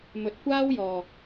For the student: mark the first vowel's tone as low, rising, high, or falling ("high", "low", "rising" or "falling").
low